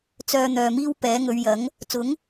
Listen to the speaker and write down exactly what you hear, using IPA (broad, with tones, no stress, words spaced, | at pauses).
t͡sœː˨ n̪œː˨miː˥wpɛː˨˥ ŋɵ˨˧ɥjɐ˨˥ŋ | t͡sʊ˨˥ŋ